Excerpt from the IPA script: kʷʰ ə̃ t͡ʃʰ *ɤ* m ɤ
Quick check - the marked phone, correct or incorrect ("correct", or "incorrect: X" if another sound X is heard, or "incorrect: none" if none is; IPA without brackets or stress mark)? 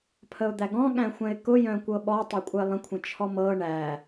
incorrect: ɔ